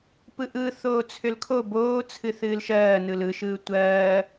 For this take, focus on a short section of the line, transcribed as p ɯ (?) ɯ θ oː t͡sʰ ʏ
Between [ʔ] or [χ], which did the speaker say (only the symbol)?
ʔ